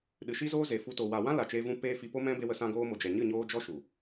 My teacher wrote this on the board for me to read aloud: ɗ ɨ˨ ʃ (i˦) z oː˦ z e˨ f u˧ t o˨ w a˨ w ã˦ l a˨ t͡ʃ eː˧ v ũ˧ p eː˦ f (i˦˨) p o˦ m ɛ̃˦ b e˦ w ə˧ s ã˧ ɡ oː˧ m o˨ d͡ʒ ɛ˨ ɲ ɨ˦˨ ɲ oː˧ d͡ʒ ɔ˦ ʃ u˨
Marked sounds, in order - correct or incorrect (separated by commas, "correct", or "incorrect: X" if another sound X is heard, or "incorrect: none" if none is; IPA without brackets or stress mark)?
correct, incorrect: i˧